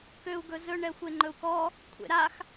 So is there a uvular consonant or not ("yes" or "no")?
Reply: no